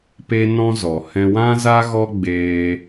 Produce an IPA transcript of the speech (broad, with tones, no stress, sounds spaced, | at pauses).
p e˦ n ɔ̃˦ z ɔ˨ h ɛ̃˧ w ã˦ z a˦ ɣ ɔ˦ ɡ͡b eː˦